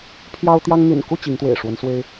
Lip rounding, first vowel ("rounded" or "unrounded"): unrounded